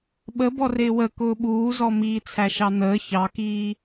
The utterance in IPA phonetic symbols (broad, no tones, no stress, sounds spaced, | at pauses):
ɓ ə b ɔ r ɪː w ə k ʊː ɓ uː z ɔ m iː t͡sʰ æ ʃ ɑ n̪ əː ç ɑ k iː